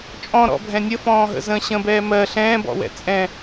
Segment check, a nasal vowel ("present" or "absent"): present